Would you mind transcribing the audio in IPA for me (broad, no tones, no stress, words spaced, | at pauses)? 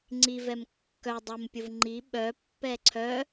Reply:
ŋ͡ǀivɛm kːœ dˤəmpʲʊv ŋ͡ǃi ɓœpːɛ ǀʰœ